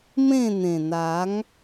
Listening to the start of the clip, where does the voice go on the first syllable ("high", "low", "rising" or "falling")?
falling